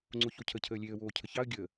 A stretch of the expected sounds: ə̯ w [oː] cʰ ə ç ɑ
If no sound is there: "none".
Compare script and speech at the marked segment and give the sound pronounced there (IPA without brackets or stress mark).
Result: oː